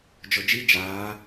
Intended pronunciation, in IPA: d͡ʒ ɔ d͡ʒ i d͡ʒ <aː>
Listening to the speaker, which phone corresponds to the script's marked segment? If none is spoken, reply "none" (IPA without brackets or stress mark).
aː